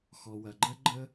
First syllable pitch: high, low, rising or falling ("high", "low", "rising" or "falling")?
low